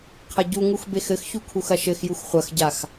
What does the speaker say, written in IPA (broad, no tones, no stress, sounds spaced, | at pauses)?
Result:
qʰ ɐ ɟ u ŋ u x b e x ɘ x ç u kʰ u x ɐ ʃ ɘ x j u x χʷ ɐ x ɟ a x